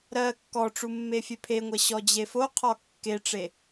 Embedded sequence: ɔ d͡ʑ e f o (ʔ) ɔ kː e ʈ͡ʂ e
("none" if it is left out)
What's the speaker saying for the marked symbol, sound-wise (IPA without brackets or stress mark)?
qʰ